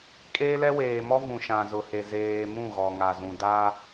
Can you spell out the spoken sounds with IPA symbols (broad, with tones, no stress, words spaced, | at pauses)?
kʼeː˦lɛ˦ weː˨mɔ˦ vũ˨ʃã˨zʊ˨he˨ zeː˨ mũ˦˨ɣɔ˨ŋa˨zũ˨ da˦